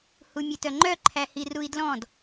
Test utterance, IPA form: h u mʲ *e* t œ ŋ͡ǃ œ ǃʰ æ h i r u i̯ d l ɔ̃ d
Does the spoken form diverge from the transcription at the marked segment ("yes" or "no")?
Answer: no